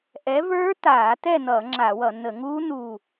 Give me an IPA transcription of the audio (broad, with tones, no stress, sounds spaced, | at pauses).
ʔ ɛ˨˥ v ə˞˦˥ t̪ aː˧˩˧ t̪ ɛ˥˨ n̪ ʌ˧˩˧ ŋ͡ǁ a˧˩˧ w ʌ˧˩˧ n̪ ə˧˩˧ ŋ uː˦˥ n̪ u˥˨